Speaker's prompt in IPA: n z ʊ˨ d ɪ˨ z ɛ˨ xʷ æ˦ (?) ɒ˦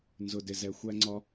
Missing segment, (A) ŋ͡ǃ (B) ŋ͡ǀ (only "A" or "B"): B